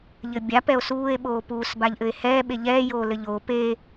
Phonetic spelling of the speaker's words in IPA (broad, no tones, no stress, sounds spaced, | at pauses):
ʎ ɘ bʲ a p ɛ o̯ s uː e̯ ɓ oː p uː s b a ʎ ʔ ɘ e̯ h ɛː ɓ e ʎ ɛː j oː l ɘ ʎ o p e